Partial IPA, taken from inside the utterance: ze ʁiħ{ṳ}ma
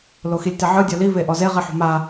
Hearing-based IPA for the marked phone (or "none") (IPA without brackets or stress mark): ṳ